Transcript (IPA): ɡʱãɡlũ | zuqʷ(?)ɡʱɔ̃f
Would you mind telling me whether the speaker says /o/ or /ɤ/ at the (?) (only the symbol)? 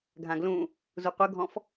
ɤ